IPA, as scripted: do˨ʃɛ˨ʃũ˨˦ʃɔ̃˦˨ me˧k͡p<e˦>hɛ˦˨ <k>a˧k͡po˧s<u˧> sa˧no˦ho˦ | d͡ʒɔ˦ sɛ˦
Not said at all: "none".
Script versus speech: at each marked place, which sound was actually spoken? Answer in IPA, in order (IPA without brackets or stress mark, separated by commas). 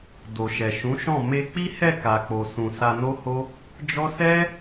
i˦, k, ũ˧